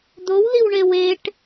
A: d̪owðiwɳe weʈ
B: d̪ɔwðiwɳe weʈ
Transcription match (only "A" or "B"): A